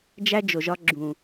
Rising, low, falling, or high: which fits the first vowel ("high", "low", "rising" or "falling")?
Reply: high